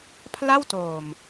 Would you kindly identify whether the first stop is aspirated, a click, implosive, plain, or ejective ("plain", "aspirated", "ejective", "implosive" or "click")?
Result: aspirated